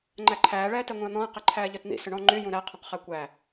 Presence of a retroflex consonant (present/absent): present